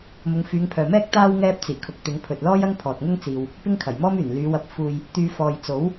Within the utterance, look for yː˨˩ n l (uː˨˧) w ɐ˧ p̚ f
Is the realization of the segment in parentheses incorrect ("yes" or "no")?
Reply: yes